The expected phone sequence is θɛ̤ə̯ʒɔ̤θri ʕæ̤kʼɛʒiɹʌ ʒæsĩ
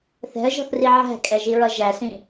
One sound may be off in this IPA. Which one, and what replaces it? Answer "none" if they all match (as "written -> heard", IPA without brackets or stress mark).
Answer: none